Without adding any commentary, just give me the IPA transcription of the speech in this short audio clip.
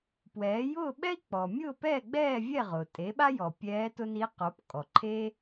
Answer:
p w ɛː˩˥ j ʊː˥˨ ɓ ɛ˥ i̯ k͡p ɔ˩ mʲ ʊː˥˨ p ɛː˥˨ ɡ͡b ɛː˥˨ vʲ ɛ˥˨ ʁ ʊː˩ tʼ e˩˥ ɓ a˥ j ɔ˩ pʲ ɛː˧˥ t ʊ˥ n i˧˥ q o˩˥ p kʼ ɔ˩ ǃʰ e˥

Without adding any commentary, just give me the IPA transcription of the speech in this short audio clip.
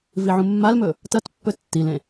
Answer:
v i ʕ ũ mː a l m ɵ | t ɐ t pː ɵ tː i l ẽ

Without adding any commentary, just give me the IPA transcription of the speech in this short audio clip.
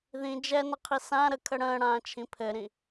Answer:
ð ĩ d͡ʒ ɛ n ə qʰ i s ã ɾ ə kʰ ə ɽ ə̃ː ɽ ãː t͡ʃʰ ĩ pʰ ɘ ɾ ĩ

